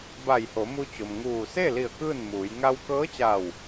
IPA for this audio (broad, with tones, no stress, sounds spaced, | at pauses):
b a˧˩ j h o˩˧ m u˧ t͡ɕ o˩ m ŋ uː˧˩ s e˥˨ l i˧˩ ə̯ k ɯː˥˨ n m uː˩˧ j ŋ a˧ w k ɤː˧˥ t͡ɕ a˧˩ w